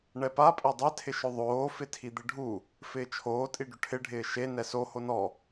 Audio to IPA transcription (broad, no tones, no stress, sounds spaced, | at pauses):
ɳ ɛ p a pʼ e dˤ ɛ tʰ ɪ ʃ ʊ ðˤ oː f ɪ tʰ i d̪ ɪ ɖʱ u | f ɪː t͡ʃʰ oː tʼ i ɖ ʊ ʈʰ ɪ ɖʱ ɪː ʃ e n ɛ s o h o n ɔ